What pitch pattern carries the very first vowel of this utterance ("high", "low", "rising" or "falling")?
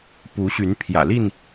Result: rising